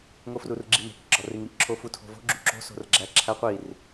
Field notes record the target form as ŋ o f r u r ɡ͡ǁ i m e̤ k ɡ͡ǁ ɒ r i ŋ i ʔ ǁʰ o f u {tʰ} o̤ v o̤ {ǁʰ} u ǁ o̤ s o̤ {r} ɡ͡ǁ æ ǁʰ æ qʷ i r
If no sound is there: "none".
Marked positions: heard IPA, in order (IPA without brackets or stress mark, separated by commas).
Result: tʰ, ɡ͡ǁ, r